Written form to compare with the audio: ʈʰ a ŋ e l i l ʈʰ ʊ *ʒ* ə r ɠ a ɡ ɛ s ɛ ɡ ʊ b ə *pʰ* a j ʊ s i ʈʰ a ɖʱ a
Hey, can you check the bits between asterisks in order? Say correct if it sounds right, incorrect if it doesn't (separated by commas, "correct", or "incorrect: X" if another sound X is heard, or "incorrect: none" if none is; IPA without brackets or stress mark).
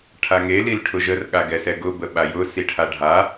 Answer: correct, incorrect: ɓ